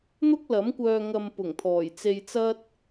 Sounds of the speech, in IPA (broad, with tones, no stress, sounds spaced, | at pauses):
n̪ ʊ˥ k̚ l ɐ˨˥ m kʷ œː˧ ŋ ɐ˧ m p ʊ˨˩ ŋ t̪ʰ ɔː˨˩ j t͡s e˧ j t͡s ɐ˥ t̚